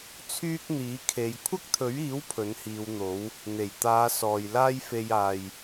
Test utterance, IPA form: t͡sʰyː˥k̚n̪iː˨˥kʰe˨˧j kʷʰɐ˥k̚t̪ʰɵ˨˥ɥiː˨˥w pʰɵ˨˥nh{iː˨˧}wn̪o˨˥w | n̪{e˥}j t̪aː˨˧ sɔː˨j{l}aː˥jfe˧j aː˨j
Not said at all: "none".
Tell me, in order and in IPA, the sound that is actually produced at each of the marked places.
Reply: iː˨˧, e˨˩, l

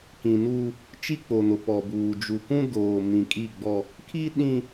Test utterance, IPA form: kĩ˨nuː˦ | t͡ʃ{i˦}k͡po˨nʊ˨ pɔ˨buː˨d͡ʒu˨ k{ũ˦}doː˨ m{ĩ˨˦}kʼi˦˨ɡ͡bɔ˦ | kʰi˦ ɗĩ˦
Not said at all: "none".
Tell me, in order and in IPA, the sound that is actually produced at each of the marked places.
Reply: i˦, ũ˦, ĩ˨

